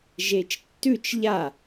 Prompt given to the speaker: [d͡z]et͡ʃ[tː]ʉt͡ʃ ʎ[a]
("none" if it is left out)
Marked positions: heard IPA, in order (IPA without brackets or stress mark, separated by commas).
ʒ, tː, a